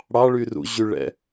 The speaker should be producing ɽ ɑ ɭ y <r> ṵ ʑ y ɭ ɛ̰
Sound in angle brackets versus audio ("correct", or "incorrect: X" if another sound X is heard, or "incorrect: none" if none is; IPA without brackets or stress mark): correct